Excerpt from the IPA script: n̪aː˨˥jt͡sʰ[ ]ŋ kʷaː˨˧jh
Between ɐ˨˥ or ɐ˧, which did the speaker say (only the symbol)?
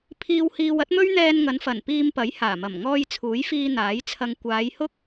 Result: ɐ˧